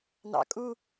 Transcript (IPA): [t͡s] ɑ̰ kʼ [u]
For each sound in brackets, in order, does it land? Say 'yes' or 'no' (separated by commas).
no, yes